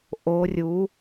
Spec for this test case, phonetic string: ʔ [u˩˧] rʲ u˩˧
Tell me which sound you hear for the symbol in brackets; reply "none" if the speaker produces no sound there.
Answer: o˩˧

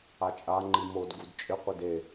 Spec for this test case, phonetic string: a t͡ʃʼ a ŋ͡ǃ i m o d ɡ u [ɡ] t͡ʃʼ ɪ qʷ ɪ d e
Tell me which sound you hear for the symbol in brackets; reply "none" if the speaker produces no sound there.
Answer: d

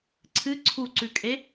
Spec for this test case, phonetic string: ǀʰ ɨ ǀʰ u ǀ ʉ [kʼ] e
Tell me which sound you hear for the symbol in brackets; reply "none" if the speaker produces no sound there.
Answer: kʼ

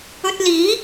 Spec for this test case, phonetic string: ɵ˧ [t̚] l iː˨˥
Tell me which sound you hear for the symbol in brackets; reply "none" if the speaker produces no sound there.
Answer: t̚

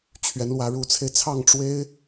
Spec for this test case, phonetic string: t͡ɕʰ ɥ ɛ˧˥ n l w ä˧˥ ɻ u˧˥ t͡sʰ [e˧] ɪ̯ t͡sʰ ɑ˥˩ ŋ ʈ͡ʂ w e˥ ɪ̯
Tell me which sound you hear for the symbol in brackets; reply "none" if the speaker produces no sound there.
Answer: e˧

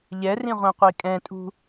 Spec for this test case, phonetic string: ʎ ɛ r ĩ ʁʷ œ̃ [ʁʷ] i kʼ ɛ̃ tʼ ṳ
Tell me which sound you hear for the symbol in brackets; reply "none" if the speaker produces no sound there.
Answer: qʷ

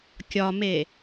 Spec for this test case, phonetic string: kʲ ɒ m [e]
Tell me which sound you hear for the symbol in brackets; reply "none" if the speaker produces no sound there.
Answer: e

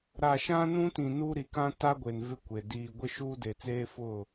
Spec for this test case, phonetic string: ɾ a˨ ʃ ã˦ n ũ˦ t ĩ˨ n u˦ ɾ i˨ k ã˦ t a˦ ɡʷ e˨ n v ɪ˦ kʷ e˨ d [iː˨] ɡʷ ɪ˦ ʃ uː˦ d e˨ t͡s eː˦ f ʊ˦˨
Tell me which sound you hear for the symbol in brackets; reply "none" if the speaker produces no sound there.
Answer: iː˨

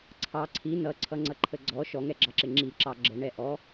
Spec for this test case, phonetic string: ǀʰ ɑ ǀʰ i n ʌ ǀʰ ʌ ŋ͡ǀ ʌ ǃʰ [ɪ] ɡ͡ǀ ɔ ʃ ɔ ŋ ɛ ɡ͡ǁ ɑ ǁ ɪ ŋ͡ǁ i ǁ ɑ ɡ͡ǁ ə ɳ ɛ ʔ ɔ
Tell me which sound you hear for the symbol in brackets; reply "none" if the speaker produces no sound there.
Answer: ə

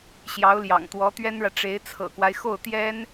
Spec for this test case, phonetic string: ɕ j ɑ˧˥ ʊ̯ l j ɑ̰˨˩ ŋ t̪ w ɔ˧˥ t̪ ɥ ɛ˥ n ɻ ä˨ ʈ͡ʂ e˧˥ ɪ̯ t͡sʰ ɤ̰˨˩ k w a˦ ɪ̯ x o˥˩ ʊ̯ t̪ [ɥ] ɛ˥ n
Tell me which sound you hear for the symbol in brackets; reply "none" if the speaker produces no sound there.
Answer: j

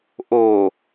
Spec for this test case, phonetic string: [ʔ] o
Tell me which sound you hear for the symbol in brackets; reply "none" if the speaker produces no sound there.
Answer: ʔ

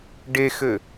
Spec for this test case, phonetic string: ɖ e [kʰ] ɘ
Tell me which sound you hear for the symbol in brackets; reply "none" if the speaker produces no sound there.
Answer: x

